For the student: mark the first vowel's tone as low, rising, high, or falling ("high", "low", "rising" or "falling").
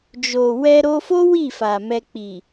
low